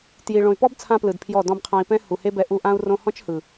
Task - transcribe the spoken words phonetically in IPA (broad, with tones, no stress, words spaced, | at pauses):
tji˨ ɭõ˨y̯pɔ˦b t͡sʰã˦plɯ˨dpʰjɔ˦˨ dɔ̃˧bqʰã˧i̯pɛ̃˦ hu˨he˦bɛ˧ ʔu˧ ʔã˦u̯rõ˦ hɔ̃˦t͡ʃhɯ˨